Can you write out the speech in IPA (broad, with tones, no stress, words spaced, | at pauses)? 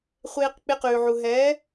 χʷeː˧q k͡pe˧qʉː˨ʕu˨ ɦɛː˨˦